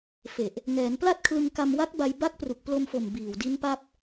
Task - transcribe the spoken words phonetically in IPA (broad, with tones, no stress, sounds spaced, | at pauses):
f e˨˩ ʔ | ŋ ɛː˩˦ n p l a˥˩ t̚ kʰ l ɯ˧ ŋ k a˧ m w a˦˥ k̚ b a˧ j b a˦˥ k̚ p r u˨˩ k̚ p l o˧ m f o˨˩ m b iː˨˩ w d i˦˥ n p a˥˩ p̚